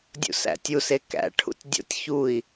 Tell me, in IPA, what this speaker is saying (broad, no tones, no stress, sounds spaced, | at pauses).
dʲ ṵ s æ̰ tʲ u s e k æ̰ ʈʰ ṵ tʲ dʲ o̰ tʲ ç u i̯